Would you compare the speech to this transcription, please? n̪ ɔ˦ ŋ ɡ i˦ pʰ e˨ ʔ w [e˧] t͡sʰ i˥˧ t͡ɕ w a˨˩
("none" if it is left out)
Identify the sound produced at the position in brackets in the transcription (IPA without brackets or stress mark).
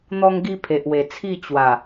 e˨˩